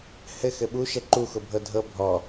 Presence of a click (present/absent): present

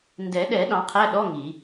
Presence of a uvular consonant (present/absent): present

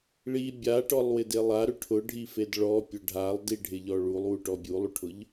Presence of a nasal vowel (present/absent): absent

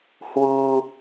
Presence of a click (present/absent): absent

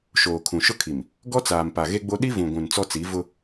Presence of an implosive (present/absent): present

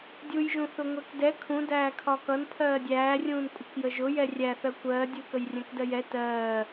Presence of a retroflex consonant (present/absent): absent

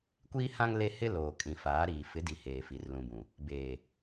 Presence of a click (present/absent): absent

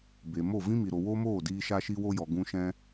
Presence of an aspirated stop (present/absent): absent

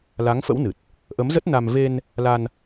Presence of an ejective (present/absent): absent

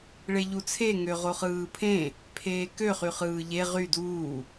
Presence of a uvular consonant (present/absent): present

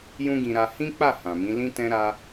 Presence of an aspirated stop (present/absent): absent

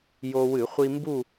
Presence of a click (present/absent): absent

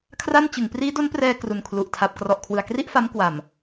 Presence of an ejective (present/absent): absent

